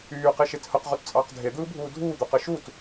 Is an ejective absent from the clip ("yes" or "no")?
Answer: no